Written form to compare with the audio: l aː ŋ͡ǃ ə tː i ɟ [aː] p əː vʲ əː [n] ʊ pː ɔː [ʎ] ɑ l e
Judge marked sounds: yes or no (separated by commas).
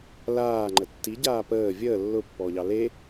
yes, no, yes